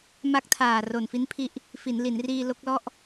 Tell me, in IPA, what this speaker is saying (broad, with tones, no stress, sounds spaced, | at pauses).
m a˦˥ k̚ tʰ aː˨˩ r o˨˩ n f i˦˥ n pʰ i˦˥ ʔ | f i˩˦ n l i˩˦ n r iː˧ l o˦˥ k̚ l ɔ˥˩ ʔ